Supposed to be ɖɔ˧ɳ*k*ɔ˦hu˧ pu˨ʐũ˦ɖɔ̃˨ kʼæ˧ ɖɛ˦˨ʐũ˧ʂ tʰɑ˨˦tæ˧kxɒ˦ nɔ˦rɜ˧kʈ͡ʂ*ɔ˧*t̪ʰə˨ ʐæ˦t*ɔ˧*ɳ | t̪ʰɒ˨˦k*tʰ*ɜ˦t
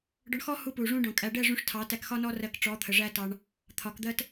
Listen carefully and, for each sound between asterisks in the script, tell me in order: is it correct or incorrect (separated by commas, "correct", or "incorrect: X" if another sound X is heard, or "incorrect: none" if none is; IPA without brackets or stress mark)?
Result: incorrect: x, incorrect: ɔ˨˦, incorrect: ɑ˧, incorrect: d̪